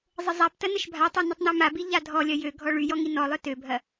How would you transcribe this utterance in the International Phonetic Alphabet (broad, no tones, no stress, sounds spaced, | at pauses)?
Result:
zˤ ə zˤ a p t ɐ n ə ʃ bʱ a tˤ ɐ n i tˤ n œ m a b i ʎ a dʱ ɔ lʲ ɐ j ø ɡʱ ɔ ɭ y j ɔ ŋ i n ɔ lˠ œ t ø bʱ ɐ